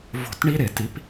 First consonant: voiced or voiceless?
voiced